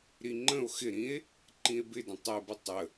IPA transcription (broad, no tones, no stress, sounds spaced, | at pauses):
ɾ i ŋ͡ǃ ə̃ o̯ x ɪ ɾ ĩ e̯ | ǃ ĩ e̯ b ɪ d ə̃ tˤ ɛ b ɪ tˤ ə